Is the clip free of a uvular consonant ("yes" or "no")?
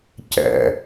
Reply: yes